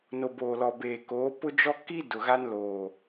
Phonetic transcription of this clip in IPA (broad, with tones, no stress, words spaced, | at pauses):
no˨boː˨lɔ˨beː˨ koː˨˦ pʊ˦d͡ʒɔ˦ ki˦ dʊ˨ɣa˦nloː˨